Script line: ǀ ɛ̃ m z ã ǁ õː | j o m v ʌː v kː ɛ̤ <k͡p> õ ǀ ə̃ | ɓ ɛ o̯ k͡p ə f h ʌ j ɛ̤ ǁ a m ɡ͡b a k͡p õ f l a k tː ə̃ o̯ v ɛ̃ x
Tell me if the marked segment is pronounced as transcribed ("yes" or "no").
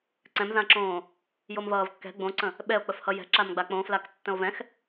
no